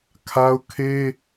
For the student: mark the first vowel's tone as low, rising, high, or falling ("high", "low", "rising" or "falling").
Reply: high